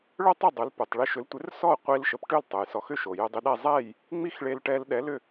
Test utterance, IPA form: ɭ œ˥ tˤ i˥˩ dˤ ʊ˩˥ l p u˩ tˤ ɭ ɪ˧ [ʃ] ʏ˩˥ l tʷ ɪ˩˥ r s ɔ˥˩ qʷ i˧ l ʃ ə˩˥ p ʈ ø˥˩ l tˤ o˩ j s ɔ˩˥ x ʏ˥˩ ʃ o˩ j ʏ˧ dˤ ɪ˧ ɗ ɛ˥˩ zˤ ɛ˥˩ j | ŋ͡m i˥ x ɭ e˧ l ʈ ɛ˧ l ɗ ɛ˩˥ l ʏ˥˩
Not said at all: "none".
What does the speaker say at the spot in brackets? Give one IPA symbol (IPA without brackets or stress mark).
ʃ